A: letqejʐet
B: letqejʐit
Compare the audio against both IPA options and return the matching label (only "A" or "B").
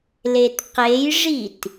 B